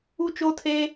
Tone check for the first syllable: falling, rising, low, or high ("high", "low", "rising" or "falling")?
high